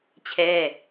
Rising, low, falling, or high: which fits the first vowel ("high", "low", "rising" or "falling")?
falling